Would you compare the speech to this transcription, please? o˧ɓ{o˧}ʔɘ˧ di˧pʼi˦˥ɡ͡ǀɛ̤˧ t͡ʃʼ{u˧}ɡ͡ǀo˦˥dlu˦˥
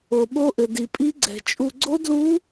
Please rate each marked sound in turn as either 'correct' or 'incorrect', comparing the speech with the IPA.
incorrect, correct

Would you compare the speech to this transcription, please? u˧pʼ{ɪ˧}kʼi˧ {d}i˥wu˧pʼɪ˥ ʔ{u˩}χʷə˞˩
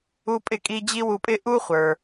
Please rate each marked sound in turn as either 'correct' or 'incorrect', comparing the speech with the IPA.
correct, incorrect, incorrect

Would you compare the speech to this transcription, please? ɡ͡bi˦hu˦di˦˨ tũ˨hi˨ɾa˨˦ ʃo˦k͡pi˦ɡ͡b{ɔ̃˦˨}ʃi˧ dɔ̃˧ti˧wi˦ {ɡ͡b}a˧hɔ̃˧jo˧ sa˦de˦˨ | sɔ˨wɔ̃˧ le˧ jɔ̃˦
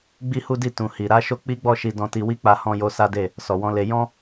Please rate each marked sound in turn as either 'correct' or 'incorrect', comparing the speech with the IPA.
incorrect, incorrect

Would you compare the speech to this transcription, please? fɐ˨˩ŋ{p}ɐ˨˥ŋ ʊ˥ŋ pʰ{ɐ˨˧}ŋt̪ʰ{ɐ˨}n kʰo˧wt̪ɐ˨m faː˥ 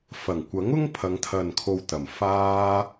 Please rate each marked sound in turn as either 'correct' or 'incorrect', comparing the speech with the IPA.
incorrect, correct, correct

